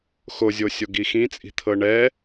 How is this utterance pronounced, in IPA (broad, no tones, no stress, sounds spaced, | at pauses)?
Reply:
x o zʲ o sʲ o ɡ i x ĩ t͡sʼ i̤ t̪ʰ ɤ ɳ ɛ